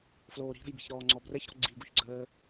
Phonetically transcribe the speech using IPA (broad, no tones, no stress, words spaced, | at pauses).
floːɾi̤ɾə̤jbi̤ç ɾɔːŋ͡ǀɔbrɛçɾɔ̤ ɡ͡ǀiɡuçɡ͡ǀəː